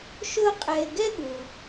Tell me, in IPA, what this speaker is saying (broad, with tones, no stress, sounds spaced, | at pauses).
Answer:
ʃ ʊ˦ qʼ ɛ˨ ɪ̯ ɡ ɛ˥ ɠ u˩